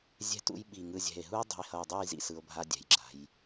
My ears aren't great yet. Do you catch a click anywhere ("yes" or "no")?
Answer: yes